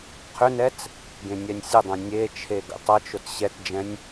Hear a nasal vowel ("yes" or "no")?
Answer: yes